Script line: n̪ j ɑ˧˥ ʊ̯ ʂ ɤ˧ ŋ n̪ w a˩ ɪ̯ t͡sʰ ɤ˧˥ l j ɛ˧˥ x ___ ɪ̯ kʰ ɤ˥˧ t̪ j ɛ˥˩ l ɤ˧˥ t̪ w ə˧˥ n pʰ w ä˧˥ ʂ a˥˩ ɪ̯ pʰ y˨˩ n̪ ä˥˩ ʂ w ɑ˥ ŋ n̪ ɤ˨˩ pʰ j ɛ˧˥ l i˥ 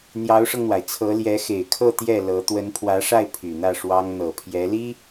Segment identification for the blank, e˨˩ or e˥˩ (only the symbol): e˨˩